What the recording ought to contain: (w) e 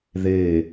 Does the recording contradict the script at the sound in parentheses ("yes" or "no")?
yes